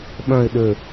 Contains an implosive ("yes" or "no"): yes